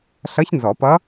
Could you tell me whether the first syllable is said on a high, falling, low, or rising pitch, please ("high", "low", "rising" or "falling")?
rising